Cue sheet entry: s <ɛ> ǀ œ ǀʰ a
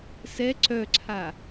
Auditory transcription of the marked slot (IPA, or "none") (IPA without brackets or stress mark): ɛ